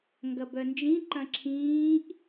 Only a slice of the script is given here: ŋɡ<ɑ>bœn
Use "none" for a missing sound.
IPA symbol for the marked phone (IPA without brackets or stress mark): ɐ